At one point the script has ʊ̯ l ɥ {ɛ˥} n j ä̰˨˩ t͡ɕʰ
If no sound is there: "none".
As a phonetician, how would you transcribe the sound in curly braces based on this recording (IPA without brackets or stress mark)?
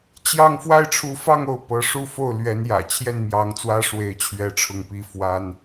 ɛ˧˥